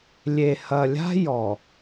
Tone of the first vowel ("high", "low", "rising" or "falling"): low